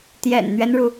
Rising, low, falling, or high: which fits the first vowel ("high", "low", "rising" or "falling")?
low